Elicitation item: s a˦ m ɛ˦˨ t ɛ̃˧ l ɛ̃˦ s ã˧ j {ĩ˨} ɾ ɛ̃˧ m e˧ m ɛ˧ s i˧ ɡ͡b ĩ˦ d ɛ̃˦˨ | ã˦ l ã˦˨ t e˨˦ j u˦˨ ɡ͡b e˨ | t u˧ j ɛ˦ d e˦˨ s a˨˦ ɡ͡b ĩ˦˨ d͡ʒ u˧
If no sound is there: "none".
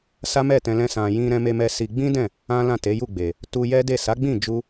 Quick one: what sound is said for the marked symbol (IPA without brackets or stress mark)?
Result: ĩ˧